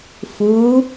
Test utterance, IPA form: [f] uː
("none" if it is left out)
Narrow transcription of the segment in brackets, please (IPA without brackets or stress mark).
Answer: f